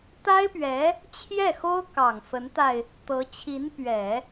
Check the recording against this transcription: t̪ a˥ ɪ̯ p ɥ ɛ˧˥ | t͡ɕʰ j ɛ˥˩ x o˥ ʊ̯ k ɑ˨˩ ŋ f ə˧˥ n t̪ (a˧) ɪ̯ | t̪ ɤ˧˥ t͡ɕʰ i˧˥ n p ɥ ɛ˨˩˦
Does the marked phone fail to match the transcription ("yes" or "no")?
no